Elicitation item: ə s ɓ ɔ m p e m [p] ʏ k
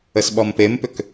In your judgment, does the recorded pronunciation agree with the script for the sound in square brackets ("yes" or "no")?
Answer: yes